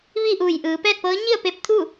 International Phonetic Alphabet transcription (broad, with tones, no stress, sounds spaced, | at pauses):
ʋ i˥˨ ʔ uː˧˩ j ʔ ɯː˩˧ p ɛː˥˨ t̚ p ɤː˧˥ ɲ i˥˨ ə̯ p e˧ p̚ t̪ʰ u˥˨